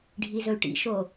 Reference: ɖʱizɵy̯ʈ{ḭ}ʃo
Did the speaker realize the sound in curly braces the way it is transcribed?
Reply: yes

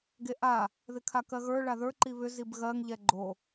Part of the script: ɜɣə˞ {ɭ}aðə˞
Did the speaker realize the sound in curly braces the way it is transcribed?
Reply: yes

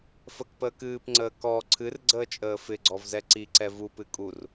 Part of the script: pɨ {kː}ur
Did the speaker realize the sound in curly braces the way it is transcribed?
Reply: no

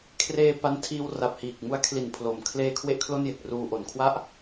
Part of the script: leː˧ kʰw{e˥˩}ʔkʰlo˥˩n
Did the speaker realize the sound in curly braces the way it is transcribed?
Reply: yes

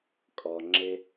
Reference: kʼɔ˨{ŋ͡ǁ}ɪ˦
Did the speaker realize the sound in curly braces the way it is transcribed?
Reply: yes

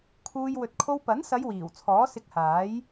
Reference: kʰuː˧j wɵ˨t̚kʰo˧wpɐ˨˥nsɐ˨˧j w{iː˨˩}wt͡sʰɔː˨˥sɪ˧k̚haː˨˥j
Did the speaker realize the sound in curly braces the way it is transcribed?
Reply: yes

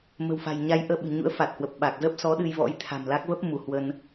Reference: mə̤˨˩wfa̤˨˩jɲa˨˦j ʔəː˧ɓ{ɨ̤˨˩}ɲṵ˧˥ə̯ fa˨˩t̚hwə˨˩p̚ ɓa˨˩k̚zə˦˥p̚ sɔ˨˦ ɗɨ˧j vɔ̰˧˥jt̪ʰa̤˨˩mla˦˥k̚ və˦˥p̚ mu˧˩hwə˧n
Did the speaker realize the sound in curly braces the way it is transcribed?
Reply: yes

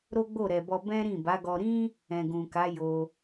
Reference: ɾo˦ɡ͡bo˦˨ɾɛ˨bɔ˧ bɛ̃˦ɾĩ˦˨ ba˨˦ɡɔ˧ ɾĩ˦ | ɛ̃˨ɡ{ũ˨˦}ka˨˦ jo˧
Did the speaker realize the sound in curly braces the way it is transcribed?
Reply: no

